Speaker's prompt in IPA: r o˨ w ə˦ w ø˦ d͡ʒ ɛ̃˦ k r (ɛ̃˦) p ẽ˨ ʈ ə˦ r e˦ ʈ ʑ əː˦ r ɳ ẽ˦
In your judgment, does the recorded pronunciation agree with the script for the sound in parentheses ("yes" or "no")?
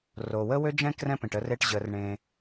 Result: yes